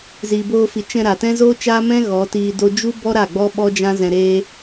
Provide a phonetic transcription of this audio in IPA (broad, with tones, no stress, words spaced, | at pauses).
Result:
ziː˨boː˧fi˨ t͡ʃɛ̃˧ɾa˨ tɛ̃˦zoː˦t͡ʃaː˦mɛ̃˦ ɣɔ˨˦tiː˧do˦ d͡ʒu˦bɔ˦ ɾa˦˨ɡ͡bɔ˦ ɓɔ˦d͡ʒã˦ zɛ̃˧ɾeː˦